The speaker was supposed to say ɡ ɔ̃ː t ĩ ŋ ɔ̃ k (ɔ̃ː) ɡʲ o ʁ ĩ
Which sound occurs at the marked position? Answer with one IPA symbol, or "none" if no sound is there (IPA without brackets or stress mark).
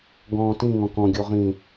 ɔ̃